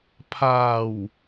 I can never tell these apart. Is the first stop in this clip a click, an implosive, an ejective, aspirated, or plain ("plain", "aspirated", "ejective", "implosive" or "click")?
aspirated